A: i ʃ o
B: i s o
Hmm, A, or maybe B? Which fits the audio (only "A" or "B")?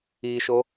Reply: A